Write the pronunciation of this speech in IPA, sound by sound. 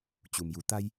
t͡ɕ u˩ m j u˩˧ t̪ a˧ j

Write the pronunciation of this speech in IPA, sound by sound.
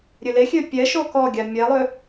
ɾʲ ø l e xʲ ø pʲ ɛ ʃ o k ɔ ɡʲ a mʲ ɛ lˠ ø

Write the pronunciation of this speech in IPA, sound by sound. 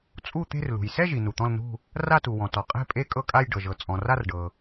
t͡sʼ u˥˨ t̪ e̤˥˨ r l ṳ˩ j s ɛ˥˨ ʒ i˩ n u˩ t̪ ɔ̃˥˨ l n ṳ˥˨ | r a˥˨ t u˩ w ɔ̃˩ t ɔ˩ qʼ e̤˥˨ pʼ e˥˨ kʼ ɤ˥˨ kʼ a˥˨ j ɖ ɤ˩ ʒ ɤ˩ t͡sʼ ɔ̃˩ r a˥˨ r ɖ ɤ˩

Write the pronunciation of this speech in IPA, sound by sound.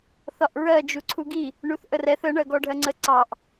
θ ɒ ʔ ɹ ɜ d͡ʒ u ǀʰ u ɡ i | ɳ u θ ʔ ə r ɛ θ ə ɳ ɜ ɡ ɔ ɖʱ ɜ ŋ͡ǀ ə ǀ ɑ ʔ

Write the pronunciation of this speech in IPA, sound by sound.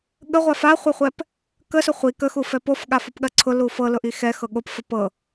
ɠ ə ʁʷ a f a χʷ ɜ χʷ ɛ p | k ə s ʊ χʷ i k ə x u f ɛ p o f ɠ a f o p ɠ ɜ ǀʰ ʊ l u f ɤ l ʊ ʔ i x ɛ x ɤ ɠ o p f ə p ɤ

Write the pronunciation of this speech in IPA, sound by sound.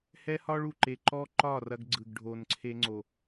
h ɛ˦ h ɒ˦ ɭ u˨ ǃ e˨ ǃ ɔ˦ ǃ ɒ˦˨ r ɐ˦ ɡ ɡ͡ǀ ɯ˨ ɡ ɖʱ o˨ n ǀʰ e˦ ŋ͡ǀ o˨

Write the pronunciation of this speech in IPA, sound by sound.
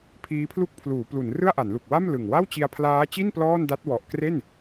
pʰ iː˦˥ pʰ l u˥˩ k̚ pʰ l uː˩˦ p l u˩˦ n r ɯ˥˩ a̯ ʔ a˩˦ n l u˨˩ k̚ w a˥˩ m l ɯ˨˩ ŋ w a˥˩ w t͡ɕ i˧ a̯ pʰ l aː˦˥ t͡ɕ i˥˩ n p l ɔː˥˩ n d a˦˥ t̚ w ɔ˨˩ ʔ k r e˥˩ n

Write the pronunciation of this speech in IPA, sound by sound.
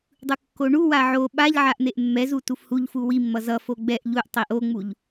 dˤ ɯ kː o ɳ u w a ʕ o ɓ a ʎ ʕ a ʔ n̪ e ʔ mː ɛ z u t u f h u ʎ f u w i mː ʌ z ʌ f o ɡ͡b ɛ ʔ ʎ u ʔ tˤ i ʔ o ŋ͡m u ʎ

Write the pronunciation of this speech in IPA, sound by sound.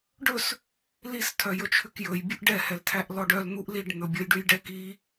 ɖ ɵ s | l i s tʰ œ j ɵ t͡ʃʰ ʉ k j ɵ j bʲ u ʔ ɖ ɛ h ɛ l tʰ æ ʔ l ɔ ɖ œ l n̪ u ʔ l i ɖ n̪ ɵ bʲ ɔ j ɖ ʉ j ɖ ɛ k i

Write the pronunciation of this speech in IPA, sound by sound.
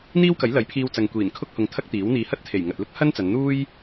n̪ iː˥ w k ɐ˨˥ j l ɐ˨˥ j pʰ iː˧ w t͡s ɐ˨ ŋ kʷ iː˨˩ n kʰ ʊ˥ k̚ h ʊ˧ ŋ t̪ʰ ɐ˥ k̚ t̪ iː˨˥ w n̪ iː˧ h ɐ˥ t̚ t̪ʰ e˨˩ j ŋ ɐ˨ t̚ l ʊ˥ k̚ h ɐ˥ n t͡s ɐ˨˧ n n̪ uː˥ j

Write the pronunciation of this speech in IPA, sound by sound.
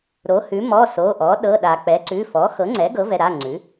ɾ o˩˥ h ʉ˩˥ m ɔ˩˧˩ s o˩˧˩ ʔ ɔ˩˥ ɗ ɤ˩˧˩ ɗ a˩ k͡p ɛ˩˥ ǀ ʉ˩˧˩ f ɔ˩˥ x ɤ˩˥ ŋ͡ǀ ɛ˩˥ ɡ ɤ˩˥ v ɛ˩˧˩ ɾ a˩˧˩ ŋ͡ǀ ʉ˩˥

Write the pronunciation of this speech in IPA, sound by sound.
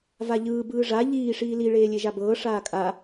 v a ʎ ɯː b ɯː ʐ a ʎ iː ʂ iː l i ɭ eː lʲ e ʒ a b ɤː ʂ aː kʼ a

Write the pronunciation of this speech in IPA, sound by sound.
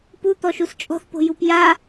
p u t̪ ɔ ʃ u s t͡ʃʼ ɔ̤ θ p o̤ j u p j a

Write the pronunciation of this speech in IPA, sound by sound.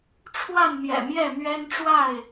ʈ͡ʂʰ w a˥˨ n n̪ j ɛ̰˨˩ m j ɛ˥˨ m ɥ ɛ˦ n ʈ͡ʂ w a˥˨ ɪ̯

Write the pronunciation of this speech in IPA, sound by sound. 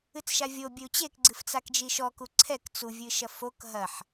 ɨ t͡s ʃ a vʲ o bʲ ɘ u̯ t͡ɕ e k ɡ͡ǀ ɨ f t͡s a k d͡ʒ i ʃ ɔ k u ǀʰ ɛ k t͡s u vʲ ɨ ʃ ɐ f o k ɦ ɐ ħ

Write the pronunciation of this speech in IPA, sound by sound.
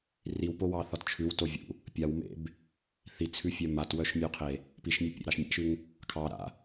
r i w p o w ɑ θ ɒ t t͡ʃʰ ʉ w t o vʲ ṵ | pʲ a w m ḛ b | θ i t͡sʰ ʉ fʲ œ m a t w œ ʃ mʲ ʉ qʰ e | p i ʃ mʲ e pʲ ḛ ɾ ɑ ʃ mʲ a̰ ʃ ʉ ŋ | kʰ ɑ ɾ a̰

